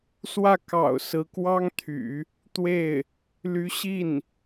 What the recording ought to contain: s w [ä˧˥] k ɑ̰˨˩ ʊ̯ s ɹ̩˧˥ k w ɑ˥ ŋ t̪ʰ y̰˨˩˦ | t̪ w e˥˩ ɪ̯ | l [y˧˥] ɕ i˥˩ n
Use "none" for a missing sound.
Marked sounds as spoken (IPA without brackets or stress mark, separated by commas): ä˥˩, y˧˥